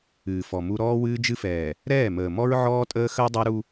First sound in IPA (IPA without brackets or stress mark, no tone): ɨː